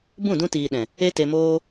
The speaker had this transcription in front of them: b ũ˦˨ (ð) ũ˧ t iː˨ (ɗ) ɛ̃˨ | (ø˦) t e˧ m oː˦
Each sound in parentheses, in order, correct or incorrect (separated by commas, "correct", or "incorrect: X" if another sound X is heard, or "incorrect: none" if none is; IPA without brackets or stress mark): incorrect: d, correct, incorrect: e˦